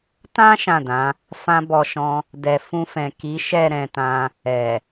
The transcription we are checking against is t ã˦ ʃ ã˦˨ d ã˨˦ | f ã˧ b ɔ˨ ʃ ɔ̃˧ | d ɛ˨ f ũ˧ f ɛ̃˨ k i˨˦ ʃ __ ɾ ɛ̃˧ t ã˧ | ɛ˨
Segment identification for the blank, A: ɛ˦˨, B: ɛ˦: A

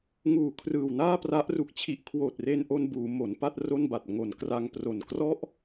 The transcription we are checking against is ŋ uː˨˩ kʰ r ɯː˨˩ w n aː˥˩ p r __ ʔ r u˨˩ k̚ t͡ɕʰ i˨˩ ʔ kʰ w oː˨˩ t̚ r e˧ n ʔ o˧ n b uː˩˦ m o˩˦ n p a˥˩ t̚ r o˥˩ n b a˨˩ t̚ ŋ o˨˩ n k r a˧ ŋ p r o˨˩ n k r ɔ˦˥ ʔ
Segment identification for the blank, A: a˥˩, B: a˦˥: B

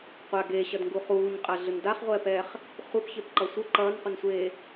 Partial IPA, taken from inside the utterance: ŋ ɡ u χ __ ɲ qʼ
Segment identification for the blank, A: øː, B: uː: B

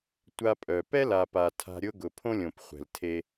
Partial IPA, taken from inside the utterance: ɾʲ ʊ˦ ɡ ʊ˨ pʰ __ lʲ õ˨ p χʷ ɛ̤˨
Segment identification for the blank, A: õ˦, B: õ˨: A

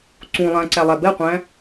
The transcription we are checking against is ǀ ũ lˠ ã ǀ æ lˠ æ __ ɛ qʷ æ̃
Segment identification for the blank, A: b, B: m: A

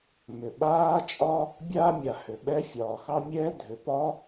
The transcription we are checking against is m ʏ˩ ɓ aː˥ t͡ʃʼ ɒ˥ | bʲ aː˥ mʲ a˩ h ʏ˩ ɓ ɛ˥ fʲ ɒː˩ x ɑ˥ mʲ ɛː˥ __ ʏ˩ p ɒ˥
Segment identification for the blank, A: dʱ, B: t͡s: A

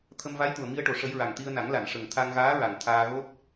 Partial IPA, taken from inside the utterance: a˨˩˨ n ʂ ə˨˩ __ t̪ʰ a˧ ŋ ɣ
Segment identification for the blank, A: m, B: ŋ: B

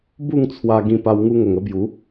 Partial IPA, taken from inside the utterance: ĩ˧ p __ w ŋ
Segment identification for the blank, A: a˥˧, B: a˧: B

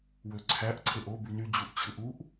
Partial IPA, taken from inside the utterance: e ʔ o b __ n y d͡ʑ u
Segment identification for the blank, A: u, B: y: B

